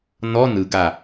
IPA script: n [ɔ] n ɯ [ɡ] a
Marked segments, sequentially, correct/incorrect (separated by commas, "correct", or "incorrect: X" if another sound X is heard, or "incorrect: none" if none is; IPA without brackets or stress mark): correct, correct